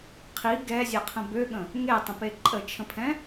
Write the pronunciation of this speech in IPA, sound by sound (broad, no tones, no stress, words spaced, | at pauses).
qʰi ɡɛzʲeqʰə̃ bøɠə̃ | ŋetˤə̃pe ǃʼət͡ʃʰə̃pʰɛ̃